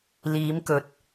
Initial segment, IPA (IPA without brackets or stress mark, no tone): l